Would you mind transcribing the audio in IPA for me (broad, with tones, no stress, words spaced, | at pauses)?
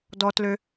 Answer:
dɔ˦tlø˦